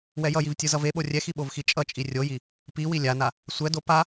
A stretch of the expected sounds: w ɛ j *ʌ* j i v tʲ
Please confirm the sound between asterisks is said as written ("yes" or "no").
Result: yes